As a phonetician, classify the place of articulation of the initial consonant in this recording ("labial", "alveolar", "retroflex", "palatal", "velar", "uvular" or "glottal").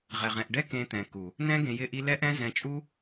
uvular